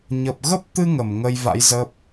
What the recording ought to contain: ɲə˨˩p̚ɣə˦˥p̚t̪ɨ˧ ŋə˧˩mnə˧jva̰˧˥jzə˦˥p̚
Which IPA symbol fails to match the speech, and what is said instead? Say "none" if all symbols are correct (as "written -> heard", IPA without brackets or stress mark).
n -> ŋ